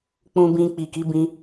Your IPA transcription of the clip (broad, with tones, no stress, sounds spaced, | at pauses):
k͡p ũ˧ b ĩ˧ k͡p i˨ k i˨˦ b ĩ˧